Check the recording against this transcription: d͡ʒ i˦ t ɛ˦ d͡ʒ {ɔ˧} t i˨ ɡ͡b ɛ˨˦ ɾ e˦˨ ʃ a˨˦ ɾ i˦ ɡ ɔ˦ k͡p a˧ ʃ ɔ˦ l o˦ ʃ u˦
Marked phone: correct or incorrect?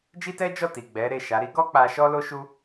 incorrect